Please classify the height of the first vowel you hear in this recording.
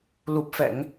high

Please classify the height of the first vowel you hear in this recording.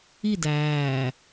high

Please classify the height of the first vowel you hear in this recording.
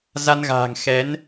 low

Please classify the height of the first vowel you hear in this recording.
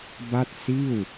low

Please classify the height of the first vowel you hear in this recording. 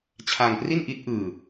low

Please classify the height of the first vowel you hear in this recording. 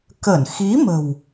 mid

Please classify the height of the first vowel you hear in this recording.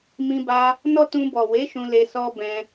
high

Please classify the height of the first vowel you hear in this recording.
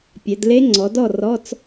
mid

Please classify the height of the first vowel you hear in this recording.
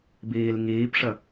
high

